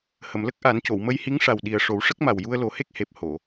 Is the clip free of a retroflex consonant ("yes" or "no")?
no